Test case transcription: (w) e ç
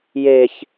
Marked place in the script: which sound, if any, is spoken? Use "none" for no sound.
j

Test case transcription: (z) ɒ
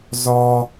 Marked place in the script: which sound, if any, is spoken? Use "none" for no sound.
z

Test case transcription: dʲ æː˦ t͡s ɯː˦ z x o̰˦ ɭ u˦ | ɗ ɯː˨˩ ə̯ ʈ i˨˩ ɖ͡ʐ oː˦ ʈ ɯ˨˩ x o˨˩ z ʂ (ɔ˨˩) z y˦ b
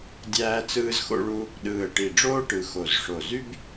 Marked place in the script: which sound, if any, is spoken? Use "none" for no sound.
o˨˩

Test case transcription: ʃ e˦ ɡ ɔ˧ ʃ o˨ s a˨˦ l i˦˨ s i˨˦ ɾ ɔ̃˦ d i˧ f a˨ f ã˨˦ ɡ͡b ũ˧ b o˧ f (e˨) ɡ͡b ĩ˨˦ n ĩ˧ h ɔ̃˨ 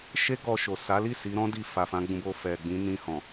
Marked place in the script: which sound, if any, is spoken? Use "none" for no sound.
ɛ˨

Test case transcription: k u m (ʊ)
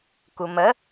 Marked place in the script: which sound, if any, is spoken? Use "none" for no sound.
ə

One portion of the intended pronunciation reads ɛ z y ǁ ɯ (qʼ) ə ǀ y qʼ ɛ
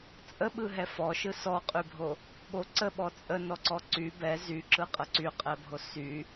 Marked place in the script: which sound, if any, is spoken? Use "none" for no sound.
qʼ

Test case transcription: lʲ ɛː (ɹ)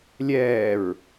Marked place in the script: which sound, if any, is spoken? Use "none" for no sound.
ɹ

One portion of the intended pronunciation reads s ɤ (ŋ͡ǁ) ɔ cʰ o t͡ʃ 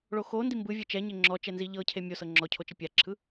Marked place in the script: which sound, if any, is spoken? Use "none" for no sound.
ŋ͡ǁ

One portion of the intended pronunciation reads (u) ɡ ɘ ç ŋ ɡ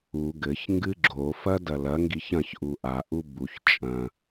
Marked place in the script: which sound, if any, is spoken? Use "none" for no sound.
u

